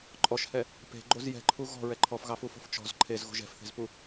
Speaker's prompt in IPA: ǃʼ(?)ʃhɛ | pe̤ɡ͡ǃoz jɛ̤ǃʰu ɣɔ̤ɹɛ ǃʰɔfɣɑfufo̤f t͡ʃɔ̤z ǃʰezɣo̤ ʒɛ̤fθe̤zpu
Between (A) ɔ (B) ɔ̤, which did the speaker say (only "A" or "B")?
A